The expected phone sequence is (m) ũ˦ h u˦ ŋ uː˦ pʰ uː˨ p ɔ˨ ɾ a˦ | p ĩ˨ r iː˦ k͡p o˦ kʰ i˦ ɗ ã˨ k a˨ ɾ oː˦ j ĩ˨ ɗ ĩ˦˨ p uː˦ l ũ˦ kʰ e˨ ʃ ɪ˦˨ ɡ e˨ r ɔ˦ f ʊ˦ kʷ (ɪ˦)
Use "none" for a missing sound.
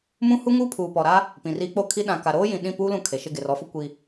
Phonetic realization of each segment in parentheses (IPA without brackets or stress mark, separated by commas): m, i˦